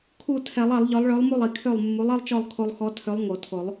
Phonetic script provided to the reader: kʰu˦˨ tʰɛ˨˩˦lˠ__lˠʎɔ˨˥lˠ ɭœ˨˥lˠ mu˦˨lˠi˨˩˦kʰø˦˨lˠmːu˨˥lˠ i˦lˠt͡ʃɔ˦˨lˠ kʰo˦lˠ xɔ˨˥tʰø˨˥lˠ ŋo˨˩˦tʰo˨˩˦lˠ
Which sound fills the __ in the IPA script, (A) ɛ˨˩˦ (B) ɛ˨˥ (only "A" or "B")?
A